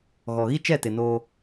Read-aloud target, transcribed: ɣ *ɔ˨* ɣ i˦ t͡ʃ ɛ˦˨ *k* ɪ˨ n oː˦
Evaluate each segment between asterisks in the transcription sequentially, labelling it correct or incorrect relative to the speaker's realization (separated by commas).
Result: correct, incorrect